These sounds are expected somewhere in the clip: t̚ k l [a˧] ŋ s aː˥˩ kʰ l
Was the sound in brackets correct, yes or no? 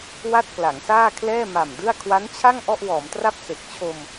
no